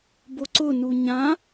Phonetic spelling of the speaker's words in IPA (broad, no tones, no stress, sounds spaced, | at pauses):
b o ǀ ʊ n u ɲ ã